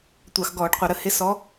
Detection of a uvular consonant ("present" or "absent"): present